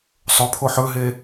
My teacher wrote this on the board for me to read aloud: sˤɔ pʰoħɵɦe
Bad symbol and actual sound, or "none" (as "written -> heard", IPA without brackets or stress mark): ɔ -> ɵ